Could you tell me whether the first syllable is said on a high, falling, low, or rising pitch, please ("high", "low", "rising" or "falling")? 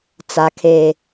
low